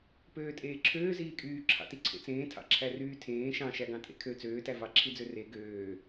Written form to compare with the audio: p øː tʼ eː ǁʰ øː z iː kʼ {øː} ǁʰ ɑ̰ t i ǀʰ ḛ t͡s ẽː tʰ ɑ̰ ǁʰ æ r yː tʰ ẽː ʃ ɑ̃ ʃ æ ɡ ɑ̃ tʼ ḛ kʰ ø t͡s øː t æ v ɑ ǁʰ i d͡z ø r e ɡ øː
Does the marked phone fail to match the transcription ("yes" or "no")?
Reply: yes